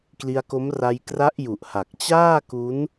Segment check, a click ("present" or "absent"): absent